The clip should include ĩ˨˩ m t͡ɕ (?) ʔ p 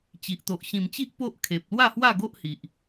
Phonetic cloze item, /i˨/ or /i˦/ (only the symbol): i˦